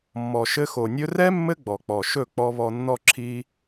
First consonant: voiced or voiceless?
voiced